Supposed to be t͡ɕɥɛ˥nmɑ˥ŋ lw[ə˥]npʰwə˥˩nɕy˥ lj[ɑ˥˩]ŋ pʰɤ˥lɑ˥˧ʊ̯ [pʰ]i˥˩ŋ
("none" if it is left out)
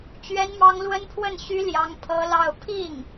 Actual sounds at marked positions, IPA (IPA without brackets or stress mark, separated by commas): ə˥, ɑ˥, pʰ